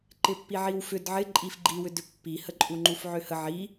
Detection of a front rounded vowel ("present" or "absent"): present